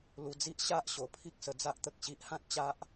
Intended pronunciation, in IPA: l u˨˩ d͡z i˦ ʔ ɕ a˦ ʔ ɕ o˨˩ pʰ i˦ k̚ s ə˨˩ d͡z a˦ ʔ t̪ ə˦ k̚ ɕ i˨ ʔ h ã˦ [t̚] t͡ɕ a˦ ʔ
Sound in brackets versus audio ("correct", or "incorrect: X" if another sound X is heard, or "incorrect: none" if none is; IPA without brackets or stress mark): correct